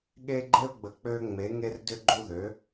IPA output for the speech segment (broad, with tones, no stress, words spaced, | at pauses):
ɠe˦ɡ͡ǃe˦ʊ̯ɡ͡bə˨˥ k͡pø˦ŋ͡me˨˥ŋe˦r dʏ˦ɡ͡ǃu˦ðø˨˥